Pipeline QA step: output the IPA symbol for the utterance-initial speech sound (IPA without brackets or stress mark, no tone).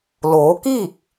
l